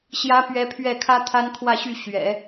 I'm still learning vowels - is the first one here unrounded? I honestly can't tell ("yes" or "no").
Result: yes